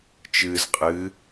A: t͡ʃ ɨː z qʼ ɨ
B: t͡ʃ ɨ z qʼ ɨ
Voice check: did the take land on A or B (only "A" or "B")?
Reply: A